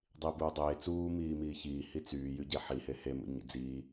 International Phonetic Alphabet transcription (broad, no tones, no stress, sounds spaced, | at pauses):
dˤ i b uː dˤ eː t͡s uː m iː m iː ç iː h i t͡s yː j y ɟ e ħ i h e h e m ṵ ɲ ḭ d͡z iː